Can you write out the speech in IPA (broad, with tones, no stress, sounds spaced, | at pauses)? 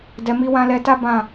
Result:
d ɛ˨ m i˧ w ã˧ l ɛ˧ t a˦ b ã˦˨